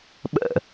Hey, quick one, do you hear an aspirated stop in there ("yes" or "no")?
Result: no